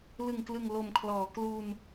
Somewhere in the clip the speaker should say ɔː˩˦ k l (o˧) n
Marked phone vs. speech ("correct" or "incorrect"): incorrect